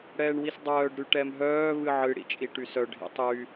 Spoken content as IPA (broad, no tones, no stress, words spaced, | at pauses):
ɽɛːɳwisdˤœːɖ ɾyʈɛmɦœː βɨʕɨ ɽḭt͡ʃʼiʈysœ ɖʱḭtˤy